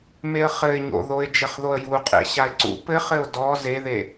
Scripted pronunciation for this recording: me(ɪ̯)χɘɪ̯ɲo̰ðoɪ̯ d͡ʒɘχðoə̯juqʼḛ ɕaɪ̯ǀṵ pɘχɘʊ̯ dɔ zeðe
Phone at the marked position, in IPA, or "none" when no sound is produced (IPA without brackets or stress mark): ə̯